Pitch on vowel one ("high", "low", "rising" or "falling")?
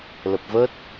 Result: low